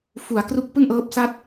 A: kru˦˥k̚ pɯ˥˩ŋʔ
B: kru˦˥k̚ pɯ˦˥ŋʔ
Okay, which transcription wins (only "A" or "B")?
A